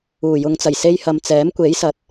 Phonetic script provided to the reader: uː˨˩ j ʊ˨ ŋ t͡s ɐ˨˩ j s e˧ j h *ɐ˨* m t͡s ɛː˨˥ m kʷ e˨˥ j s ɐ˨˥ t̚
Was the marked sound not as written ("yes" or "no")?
no